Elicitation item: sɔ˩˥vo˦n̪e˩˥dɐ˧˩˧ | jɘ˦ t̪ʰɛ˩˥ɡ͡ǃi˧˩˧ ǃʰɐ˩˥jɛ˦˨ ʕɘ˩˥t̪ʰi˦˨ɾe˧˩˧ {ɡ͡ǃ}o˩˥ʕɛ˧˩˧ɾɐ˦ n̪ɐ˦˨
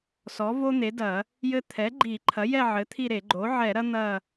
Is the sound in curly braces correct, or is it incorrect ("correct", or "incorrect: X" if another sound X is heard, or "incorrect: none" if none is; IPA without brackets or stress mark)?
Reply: correct